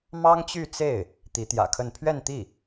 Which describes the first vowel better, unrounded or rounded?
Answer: unrounded